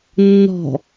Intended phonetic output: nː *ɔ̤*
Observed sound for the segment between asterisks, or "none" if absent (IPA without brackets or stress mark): ɔ̤